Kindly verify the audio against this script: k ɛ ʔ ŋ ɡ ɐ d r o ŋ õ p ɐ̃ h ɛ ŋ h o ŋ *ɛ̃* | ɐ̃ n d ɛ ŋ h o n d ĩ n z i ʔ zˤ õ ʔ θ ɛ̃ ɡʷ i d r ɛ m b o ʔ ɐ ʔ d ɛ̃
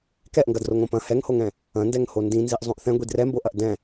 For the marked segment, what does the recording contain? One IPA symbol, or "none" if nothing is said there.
ɛ̃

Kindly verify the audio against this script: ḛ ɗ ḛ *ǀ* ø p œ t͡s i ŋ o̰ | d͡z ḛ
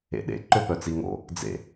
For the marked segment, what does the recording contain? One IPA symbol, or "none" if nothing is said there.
ǃ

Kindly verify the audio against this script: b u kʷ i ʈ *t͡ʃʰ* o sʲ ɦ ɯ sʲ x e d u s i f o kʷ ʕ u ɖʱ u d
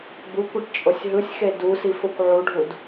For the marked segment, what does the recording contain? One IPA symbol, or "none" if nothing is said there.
t͡ʃʼ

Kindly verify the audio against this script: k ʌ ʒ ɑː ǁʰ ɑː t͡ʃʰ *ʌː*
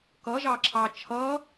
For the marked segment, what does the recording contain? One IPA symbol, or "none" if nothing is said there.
ʌː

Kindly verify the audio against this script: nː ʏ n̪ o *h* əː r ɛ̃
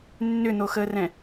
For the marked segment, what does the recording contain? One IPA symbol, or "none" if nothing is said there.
x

